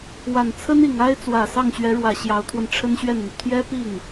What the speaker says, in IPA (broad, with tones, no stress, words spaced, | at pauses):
wa˨˩nt͡sʰə˥ni˨˩ŋa˥ɪ̯ t͡swä˨˩sɑ˥˩ŋɕɥɛ˧˥ɻwä˨˩ ɕjɑ˧˥ʊ̯t̪ʰwə˧n ʈ͡ʂʰə˥nɕɥɛ˥˩nn̪y˩ t̪ʰjɛ˥pi˥˩ŋ